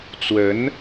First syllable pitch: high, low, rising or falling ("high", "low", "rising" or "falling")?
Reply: rising